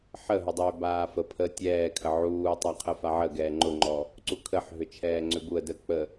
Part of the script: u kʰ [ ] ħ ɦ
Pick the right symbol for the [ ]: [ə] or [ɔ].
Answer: ə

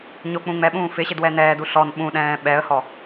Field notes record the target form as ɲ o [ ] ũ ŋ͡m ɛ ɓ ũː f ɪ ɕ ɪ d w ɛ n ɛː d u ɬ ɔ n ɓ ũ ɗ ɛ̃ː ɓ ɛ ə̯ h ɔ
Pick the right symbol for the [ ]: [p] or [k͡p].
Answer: k͡p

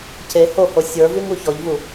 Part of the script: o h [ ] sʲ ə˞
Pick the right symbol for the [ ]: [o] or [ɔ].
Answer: o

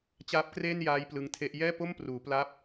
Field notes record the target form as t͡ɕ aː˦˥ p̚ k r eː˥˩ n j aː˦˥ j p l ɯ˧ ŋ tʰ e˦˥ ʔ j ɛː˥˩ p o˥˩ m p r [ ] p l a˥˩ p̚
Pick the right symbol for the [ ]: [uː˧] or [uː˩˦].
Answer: uː˩˦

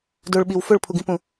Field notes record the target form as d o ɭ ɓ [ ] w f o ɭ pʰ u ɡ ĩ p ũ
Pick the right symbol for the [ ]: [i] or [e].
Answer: i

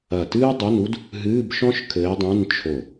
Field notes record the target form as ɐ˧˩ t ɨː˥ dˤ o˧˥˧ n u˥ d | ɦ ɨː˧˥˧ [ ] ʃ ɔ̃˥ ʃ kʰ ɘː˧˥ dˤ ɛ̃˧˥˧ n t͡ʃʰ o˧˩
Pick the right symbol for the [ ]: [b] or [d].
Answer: b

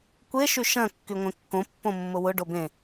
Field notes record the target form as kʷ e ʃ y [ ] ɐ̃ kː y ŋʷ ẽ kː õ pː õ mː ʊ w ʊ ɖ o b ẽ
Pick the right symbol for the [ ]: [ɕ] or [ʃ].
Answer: ʃ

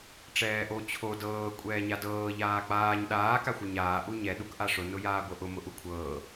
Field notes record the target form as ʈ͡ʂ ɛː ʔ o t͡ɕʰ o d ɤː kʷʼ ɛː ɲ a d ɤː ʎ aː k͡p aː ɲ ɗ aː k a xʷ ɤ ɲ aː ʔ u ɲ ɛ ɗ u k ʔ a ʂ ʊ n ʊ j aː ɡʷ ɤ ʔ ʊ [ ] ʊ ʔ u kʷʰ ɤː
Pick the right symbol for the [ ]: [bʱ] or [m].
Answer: m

